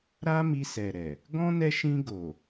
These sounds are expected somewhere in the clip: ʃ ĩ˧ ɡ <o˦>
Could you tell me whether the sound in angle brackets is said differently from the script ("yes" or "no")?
yes